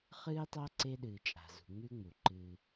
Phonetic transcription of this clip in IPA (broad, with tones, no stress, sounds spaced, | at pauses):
χ ɨː˦ tˤ a˦ ǀ e˦ ɗ ɨː˨ t͡ʃʼ a̤˨ z ṳ˨ ŋ͡m ʉ˦ ŋ͡m u˨ ǃ ɨː˦